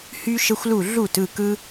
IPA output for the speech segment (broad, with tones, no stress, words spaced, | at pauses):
hy˧ʃə˧xʷlu˧˩ ɮu˧˩t ɯ˧˩kɯ˧